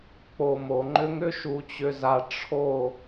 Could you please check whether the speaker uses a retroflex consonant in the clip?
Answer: yes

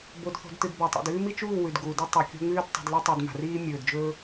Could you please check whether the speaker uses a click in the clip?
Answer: no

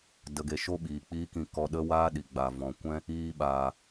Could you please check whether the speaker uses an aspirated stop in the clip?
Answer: no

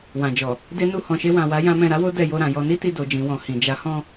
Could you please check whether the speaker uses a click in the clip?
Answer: no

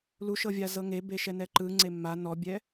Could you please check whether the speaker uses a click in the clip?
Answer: yes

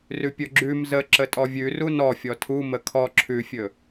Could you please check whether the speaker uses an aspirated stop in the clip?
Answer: yes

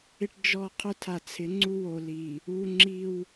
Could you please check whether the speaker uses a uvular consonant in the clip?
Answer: yes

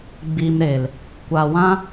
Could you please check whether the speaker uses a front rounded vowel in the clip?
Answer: no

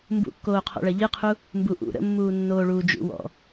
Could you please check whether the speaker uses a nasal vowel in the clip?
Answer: no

